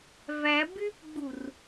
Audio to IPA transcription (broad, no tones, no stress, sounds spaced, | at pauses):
v æ b y p ɡ͡b u r